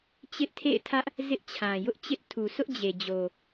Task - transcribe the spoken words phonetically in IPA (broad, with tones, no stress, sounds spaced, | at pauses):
t͡ɕ ɪ˦ ʔ tʰ ḛ˦˨ ɪ̯ tʰ ä˦ ʔ | z ɪ˦ ʔ t͡ɕʰ ã˨ j ʊ˦ ʔ t͡ɕ ɪ˦ ʔ tʰ u˨ sʰ ʊ˦ ʔ d͡ʑ e˨ d͡ʑ o˨